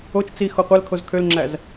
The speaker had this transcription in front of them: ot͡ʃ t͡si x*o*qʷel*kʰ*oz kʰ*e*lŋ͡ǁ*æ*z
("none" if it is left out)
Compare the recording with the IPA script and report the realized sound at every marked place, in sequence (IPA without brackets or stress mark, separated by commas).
o, kʰ, ø, æ